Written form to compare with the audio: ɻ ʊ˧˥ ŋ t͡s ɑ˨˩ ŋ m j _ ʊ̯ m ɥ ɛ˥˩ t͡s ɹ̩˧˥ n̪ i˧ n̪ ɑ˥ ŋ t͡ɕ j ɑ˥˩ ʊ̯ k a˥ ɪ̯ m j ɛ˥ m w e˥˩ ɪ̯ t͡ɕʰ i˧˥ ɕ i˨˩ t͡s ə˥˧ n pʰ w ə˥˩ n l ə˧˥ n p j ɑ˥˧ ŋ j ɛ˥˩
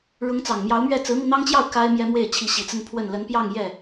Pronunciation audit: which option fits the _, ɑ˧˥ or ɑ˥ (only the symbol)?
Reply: ɑ˧˥